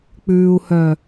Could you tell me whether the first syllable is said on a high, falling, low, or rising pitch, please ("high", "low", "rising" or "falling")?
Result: low